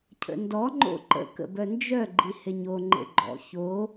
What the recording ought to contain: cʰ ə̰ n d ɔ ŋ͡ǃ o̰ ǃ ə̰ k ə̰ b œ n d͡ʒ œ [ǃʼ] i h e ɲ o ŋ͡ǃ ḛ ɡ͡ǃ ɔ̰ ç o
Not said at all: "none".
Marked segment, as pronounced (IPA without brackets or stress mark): ɡ͡ǃ